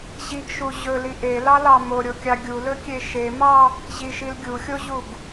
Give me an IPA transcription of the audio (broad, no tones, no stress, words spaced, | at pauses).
ʑiɡʃu ʑɵli ʔelɑlɑ moɾʲokʲɑ ɡʲulɵkʲe ʃemɑ | ʑiʃil ɡʲuxʲoʑuɡ